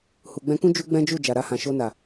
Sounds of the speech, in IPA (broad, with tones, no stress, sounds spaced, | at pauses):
h u˨ ɡ͡b ɛ̃˧ k ũ˦ d͡ʒ u˦ ɡ͡b ɛ̃˦ d͡ʒ u˦˨ d͡ʒ a˨ ɾ a˧ h ã˨ ʃ o˧ n a˨